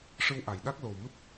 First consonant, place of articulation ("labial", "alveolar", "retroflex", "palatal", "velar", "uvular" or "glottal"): retroflex